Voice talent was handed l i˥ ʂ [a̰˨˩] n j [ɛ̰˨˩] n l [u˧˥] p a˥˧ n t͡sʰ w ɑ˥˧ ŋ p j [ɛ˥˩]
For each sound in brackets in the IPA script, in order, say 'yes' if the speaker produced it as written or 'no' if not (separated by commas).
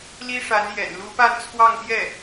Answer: no, yes, yes, yes